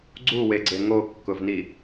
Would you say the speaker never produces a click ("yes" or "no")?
no